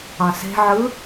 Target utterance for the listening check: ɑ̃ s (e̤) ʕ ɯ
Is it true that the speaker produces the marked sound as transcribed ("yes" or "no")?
yes